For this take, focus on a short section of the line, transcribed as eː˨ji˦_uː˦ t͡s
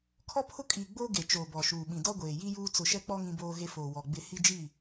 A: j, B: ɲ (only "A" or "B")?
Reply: A